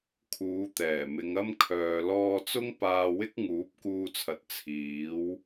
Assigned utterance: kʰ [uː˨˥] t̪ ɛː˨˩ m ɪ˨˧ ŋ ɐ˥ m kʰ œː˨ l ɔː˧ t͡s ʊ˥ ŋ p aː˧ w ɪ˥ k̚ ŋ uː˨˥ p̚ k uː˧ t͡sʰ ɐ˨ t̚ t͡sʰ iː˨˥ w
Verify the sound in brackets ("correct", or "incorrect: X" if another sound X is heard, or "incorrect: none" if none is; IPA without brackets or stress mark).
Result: incorrect: uː˨˧